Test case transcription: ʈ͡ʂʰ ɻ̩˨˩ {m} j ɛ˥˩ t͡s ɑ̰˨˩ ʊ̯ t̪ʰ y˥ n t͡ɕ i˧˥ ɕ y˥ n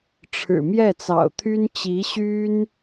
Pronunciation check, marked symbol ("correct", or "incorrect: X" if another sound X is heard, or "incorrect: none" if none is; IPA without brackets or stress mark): correct